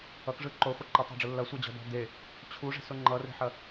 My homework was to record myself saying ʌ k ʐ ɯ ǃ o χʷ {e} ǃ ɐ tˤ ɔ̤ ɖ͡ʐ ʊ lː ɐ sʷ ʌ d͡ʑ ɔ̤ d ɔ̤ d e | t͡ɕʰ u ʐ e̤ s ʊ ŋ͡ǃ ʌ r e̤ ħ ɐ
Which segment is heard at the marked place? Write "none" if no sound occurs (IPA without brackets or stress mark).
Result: e